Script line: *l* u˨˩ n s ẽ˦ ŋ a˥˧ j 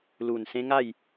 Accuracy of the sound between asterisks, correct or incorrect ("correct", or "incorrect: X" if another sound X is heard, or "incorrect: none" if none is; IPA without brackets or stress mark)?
correct